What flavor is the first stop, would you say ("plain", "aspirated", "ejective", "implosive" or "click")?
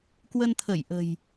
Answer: plain